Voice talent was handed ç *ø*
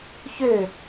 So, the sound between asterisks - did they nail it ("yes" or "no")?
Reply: yes